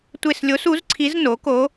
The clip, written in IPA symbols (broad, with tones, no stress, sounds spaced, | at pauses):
tʷ e˦˨ s lʲ o˧˥ s u˩˥ z ǀʰ i˧˥ z n o˩˥ k o˧˥